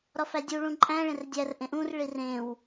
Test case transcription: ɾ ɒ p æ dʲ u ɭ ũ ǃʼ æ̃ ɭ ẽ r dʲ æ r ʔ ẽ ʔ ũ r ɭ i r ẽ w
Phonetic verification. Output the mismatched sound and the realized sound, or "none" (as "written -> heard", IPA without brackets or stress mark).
p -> f